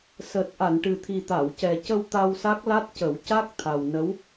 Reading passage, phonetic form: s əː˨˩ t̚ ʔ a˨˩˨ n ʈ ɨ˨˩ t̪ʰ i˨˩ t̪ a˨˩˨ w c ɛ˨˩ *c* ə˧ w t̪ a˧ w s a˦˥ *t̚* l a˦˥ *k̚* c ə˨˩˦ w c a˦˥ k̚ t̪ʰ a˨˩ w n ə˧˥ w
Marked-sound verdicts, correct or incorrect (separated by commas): correct, incorrect, incorrect